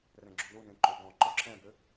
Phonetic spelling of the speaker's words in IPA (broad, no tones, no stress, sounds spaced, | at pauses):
r ɛ̃ ɡ͡ǁ u l u n ẽ ǃ ʏ ɡ ɔ̃ ǃ ɔ ǁ ɛ̃ b ʏ